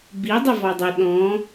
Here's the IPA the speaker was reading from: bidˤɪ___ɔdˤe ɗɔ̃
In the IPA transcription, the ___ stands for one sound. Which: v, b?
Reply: v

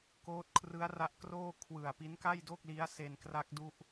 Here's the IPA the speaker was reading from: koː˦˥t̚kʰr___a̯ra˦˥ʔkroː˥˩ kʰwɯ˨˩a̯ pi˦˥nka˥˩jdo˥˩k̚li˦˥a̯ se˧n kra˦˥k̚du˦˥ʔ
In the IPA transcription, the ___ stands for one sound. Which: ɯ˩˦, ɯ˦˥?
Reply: ɯ˦˥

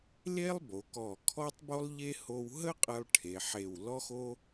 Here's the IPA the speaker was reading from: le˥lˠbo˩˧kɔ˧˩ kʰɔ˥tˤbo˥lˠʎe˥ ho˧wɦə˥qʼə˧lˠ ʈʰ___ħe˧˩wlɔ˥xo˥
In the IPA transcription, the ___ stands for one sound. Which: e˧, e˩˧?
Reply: e˩˧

